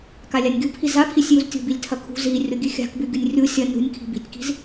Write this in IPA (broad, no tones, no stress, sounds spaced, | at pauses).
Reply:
k a lʲ a nʲ ɡʲ u pʰ i z a pʰ i sʲ j u z tʲ o̤ b i lʲ tʰ ɐ kʰ ṳ z i rʲ o ɡʲ ʉ xʲ a̤ k b ʉ ɡʲ u nʲ rʲ u sʲ ɐ n ṳ nʲ kʰ i̤ b i̤ tʲ k i̤ z